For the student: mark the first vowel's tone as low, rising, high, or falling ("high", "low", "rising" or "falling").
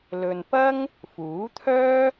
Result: low